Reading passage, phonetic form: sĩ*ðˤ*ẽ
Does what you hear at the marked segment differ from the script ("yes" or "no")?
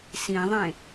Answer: no